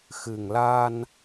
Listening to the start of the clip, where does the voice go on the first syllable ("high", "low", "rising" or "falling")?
low